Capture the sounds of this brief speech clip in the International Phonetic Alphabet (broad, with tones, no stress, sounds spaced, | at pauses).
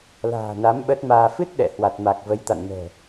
l a̤ː˨˩ n a˨˦ m ɓ ə˦˥ t̚ m aː˧ f ɨ˦˥ t̚ ɗ ɛ̰˧˨ h w a˨˩ t̚ m a˨˩ k̚ v ə˨˦ j t̪ a̰˧˨ n m ɛ̤˨˩